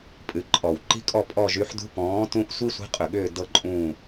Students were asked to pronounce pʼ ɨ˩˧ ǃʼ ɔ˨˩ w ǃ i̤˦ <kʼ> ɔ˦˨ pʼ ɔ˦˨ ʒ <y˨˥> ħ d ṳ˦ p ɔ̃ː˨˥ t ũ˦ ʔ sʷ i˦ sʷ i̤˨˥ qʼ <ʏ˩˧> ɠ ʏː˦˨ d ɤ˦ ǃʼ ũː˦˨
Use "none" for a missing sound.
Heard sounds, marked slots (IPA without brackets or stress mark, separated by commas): kʼ, y˨˥, ʏ˨˩